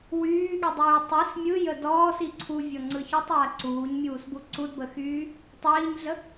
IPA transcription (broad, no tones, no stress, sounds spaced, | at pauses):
w yː ɠ i dˤ yː tˤ i s mʲ ɯ j ə d ɔː s i ǀʰ u vʲ ɔ ŋ͡ǀ ɯ ç y tˤ j a ǀ uː ɲ mʲ uː s b u ǀ u d b ə x yː | tˤ iː ɲ ɮ ə